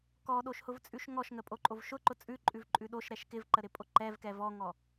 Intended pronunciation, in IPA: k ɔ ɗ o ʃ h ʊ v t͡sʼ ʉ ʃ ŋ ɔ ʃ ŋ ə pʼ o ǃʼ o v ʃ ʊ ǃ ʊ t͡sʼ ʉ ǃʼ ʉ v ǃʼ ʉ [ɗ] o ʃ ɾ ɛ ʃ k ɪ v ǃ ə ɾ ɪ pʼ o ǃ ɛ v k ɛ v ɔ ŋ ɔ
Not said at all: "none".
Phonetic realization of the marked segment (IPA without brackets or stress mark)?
ɗ